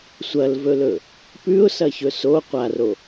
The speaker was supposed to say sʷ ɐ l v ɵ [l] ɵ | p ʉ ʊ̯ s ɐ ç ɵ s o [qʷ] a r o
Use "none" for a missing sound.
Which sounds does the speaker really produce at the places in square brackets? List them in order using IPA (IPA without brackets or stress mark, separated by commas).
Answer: l, qʷ